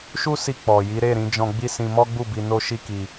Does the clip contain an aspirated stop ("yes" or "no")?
no